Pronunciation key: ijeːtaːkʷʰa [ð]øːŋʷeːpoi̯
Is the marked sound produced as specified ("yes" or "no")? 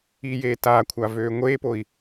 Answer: no